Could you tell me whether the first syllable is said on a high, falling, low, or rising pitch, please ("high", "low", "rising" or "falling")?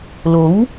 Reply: rising